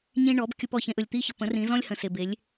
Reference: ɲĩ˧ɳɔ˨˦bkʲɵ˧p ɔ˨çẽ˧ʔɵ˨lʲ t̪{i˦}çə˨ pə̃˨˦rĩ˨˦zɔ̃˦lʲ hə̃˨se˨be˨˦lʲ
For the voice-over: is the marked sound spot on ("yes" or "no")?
yes